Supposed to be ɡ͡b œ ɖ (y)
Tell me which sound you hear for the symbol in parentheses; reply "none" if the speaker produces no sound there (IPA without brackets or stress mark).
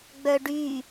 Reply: y